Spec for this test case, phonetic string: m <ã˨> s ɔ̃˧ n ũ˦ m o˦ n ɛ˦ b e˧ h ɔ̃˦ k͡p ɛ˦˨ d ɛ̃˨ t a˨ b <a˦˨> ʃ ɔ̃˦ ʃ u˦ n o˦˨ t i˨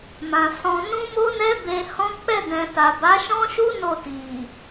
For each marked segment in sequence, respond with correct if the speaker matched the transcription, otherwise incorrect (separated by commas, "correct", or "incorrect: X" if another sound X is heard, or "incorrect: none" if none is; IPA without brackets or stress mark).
correct, incorrect: a˨˦